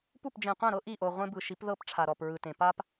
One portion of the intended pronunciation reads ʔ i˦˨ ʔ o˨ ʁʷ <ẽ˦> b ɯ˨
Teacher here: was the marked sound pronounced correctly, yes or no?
yes